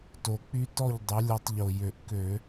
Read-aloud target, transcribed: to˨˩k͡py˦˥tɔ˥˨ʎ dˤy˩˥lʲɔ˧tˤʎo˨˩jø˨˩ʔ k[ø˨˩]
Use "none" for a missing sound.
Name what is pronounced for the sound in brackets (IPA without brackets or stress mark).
ø˧˩˧